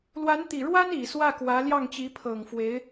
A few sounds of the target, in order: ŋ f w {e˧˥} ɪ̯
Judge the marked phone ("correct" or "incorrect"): correct